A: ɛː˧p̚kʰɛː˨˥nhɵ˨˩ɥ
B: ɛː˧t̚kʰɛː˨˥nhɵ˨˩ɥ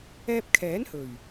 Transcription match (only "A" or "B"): A